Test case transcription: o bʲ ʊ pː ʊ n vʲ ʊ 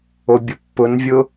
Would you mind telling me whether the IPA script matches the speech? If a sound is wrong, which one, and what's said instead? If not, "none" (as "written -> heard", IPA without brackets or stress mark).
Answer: none